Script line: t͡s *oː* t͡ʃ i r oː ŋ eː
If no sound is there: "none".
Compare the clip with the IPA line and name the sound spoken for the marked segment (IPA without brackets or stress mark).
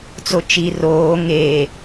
o